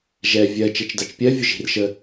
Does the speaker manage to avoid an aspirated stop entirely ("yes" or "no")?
yes